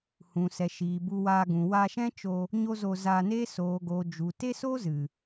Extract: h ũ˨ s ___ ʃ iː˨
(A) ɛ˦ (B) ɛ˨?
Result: B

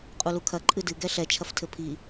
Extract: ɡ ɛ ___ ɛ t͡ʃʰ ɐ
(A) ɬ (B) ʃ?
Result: A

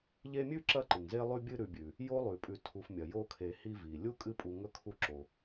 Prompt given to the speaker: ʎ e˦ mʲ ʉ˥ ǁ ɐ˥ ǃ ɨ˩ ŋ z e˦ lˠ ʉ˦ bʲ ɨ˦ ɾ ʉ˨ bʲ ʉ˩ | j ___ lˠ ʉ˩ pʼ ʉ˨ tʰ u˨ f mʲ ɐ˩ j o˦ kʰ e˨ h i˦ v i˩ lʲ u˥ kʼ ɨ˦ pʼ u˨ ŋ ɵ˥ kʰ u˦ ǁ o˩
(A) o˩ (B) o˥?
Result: B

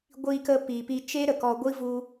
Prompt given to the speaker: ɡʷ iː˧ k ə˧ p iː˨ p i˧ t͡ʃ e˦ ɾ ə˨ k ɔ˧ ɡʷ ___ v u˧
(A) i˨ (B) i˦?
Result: B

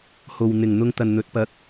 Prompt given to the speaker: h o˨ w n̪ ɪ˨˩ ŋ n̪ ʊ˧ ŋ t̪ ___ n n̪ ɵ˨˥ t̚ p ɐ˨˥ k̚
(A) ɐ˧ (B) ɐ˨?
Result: B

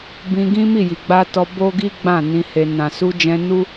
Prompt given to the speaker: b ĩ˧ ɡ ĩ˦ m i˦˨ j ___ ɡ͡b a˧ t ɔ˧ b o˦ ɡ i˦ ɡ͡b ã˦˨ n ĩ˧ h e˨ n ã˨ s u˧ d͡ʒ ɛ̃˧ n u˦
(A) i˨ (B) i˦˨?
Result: A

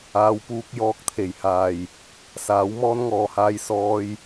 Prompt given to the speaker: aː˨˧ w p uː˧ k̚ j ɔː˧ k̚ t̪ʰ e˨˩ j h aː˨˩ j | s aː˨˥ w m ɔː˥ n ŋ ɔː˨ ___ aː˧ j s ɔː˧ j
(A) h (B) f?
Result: A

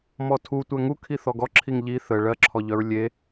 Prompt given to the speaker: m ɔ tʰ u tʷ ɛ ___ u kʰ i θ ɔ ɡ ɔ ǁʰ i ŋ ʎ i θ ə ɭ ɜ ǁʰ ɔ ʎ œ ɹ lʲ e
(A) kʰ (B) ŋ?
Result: B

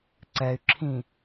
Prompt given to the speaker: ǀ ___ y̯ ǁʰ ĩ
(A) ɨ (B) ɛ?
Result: B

